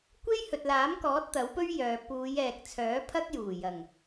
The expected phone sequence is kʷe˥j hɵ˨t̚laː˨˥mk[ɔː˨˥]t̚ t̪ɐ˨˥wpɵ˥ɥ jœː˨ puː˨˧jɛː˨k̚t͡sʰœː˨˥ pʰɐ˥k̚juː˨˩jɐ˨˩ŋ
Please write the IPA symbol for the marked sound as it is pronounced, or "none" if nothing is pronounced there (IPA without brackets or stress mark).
ɔː˨˥